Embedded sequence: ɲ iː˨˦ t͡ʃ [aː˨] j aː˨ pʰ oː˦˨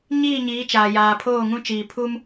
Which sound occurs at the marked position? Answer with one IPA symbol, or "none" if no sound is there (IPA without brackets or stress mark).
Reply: aː˨